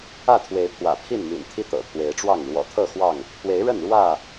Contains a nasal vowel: no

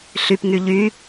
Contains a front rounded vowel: yes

